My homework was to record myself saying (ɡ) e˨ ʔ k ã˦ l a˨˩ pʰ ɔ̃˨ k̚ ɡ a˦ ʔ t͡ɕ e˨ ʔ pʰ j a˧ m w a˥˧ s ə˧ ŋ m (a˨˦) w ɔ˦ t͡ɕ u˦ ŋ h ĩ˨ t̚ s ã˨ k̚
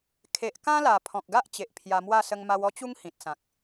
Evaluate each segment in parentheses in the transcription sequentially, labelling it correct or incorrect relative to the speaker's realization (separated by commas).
incorrect, incorrect